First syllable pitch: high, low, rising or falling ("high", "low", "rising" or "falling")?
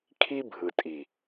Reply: high